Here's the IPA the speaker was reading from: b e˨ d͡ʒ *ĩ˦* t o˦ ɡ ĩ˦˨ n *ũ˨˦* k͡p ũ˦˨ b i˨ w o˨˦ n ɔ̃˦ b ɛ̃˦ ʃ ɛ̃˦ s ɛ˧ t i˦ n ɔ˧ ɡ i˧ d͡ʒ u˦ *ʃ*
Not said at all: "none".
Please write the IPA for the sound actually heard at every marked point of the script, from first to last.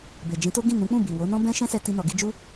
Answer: ĩ˨˦, ũ˨˦, none

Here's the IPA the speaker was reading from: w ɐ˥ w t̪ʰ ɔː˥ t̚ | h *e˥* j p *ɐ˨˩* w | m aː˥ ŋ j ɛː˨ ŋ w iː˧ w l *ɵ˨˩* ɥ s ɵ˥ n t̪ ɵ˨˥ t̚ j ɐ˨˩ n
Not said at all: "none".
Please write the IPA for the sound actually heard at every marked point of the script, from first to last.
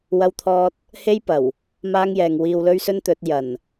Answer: e˥, ɐ˨˩, ɵ˥

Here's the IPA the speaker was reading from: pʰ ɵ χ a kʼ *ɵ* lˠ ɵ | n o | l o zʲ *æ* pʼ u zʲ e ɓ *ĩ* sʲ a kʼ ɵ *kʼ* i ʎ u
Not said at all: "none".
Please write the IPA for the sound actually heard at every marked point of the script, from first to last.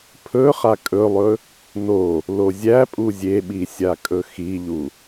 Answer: ɵ, æ, i, x

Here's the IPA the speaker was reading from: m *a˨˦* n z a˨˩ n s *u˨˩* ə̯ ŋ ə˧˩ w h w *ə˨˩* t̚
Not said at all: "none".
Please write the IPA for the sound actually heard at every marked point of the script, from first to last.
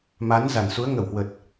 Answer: a˨˦, u˨˦, ə˨˩

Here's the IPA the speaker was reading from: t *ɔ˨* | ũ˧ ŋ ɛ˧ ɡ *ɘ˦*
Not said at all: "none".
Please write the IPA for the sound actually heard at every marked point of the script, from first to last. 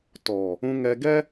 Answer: ɔ˨, ɛ˦

